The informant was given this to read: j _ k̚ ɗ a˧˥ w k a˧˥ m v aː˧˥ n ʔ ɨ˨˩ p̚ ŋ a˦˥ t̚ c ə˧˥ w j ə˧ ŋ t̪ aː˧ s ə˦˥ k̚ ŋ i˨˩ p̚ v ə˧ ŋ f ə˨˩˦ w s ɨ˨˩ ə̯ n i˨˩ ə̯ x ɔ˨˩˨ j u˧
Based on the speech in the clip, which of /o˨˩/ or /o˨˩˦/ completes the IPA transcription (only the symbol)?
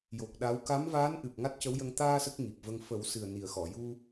o˨˩